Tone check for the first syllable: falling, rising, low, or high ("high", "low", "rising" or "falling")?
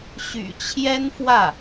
low